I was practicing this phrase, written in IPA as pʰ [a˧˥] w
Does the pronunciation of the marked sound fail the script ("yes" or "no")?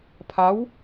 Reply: no